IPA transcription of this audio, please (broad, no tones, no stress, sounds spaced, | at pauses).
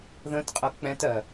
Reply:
ð ə̃ t qʼ ʌ k͡p ɛ̃ t ɜ